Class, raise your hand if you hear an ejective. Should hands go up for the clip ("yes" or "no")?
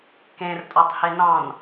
yes